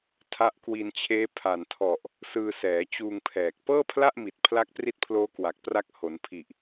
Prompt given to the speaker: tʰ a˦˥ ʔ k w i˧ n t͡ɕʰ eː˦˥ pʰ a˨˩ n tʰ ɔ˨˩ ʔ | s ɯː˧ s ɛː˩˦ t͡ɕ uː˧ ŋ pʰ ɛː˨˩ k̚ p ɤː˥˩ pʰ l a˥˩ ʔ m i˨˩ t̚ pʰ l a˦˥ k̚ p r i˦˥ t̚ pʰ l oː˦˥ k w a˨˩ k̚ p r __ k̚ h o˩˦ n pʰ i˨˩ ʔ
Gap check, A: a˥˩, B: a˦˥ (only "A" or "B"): B